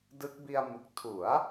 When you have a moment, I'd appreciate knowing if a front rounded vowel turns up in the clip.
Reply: no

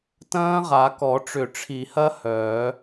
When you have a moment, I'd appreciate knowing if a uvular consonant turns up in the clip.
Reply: yes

